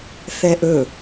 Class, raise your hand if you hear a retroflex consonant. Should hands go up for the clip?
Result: no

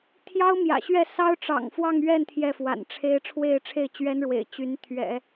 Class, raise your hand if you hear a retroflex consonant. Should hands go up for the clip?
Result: yes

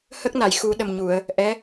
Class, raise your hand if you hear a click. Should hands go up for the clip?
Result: no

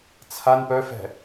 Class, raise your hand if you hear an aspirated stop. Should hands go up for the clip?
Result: yes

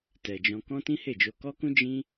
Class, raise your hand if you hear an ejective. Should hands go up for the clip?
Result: no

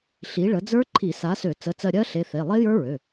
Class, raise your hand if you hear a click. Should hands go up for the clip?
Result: yes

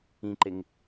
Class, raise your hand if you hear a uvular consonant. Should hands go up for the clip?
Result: no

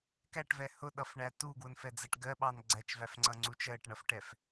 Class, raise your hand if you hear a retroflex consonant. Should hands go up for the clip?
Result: yes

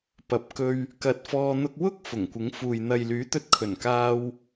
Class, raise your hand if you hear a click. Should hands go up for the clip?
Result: no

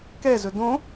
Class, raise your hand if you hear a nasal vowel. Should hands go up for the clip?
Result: yes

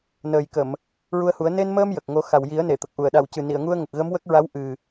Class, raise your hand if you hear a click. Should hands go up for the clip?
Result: no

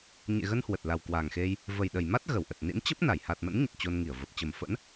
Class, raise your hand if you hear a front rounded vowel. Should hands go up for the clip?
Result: no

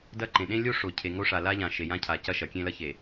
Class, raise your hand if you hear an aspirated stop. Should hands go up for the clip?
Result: yes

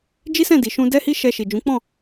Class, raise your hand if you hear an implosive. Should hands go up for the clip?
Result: no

